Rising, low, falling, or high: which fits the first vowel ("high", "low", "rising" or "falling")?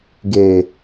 low